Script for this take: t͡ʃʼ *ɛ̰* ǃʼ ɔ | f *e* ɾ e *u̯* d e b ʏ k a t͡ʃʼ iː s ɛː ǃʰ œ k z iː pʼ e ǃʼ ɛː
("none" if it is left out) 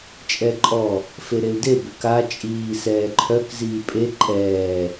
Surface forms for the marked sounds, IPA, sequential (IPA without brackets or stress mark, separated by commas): ɛ, e, u̯